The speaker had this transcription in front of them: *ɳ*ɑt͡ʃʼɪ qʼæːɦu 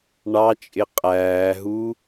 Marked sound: correct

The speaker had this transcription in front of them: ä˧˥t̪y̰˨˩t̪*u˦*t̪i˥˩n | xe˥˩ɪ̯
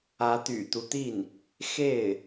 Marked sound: correct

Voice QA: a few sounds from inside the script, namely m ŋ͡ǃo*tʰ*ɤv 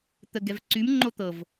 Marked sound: incorrect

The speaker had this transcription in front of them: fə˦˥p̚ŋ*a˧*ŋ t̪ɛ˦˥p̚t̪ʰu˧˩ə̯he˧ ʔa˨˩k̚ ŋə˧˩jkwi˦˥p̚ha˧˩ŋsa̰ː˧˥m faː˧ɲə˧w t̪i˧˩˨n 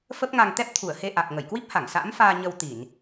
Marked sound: correct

